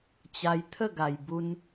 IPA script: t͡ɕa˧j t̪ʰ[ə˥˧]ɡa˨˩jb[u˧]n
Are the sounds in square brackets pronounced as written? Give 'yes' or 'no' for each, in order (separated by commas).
yes, yes